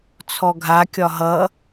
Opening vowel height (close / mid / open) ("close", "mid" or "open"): mid